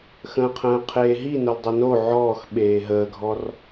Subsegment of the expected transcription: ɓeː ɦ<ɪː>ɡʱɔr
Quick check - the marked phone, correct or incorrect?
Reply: incorrect